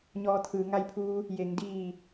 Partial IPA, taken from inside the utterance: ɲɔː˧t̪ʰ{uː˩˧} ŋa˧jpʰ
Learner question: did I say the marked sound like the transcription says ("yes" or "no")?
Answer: no